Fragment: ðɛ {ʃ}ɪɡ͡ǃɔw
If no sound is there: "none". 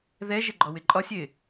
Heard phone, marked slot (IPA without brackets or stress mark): ʒ